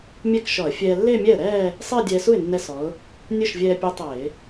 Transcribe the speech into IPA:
mʲ ɛ˥˧ k ʃ ɔ˧˩˧ ə̯ fʲ ɛː˧ lː ɪː˥˧ mʲ ɛ˥˩ ə̯ ɾ ɛː˥˧ | sˤ ɪː˥˧ dʲ ɛː˧ s u˥˩ ɪ̯ nː ɛ˧ s ɔ˩˧ ʊ̯ | nʲ ɵ˥˩ ʃ vʲ ɛː˧ pʲ œ˧˥ tˤ ɪː˧˩˧

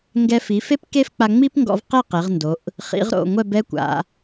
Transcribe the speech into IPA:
ŋ ɡ ɛ˧ f i˩˧ f e˥ p k e˥ f k͡p a˧ ŋ͡m i˥ p ŋ ɡ ɔ̰˧ v q e˥˧ q e˩˧ ʁ n d o˩˧ ʔ | χ ḭ˩˧ ʁ ɾ o̰˧˩ ŋʷ ɛ˥˧ b ɛ˥ kʷ a̰˩˧

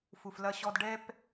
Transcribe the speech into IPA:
f u˨ f l ɐ˦ ɕ ɔ˦ d ɖ ɛ˦ p

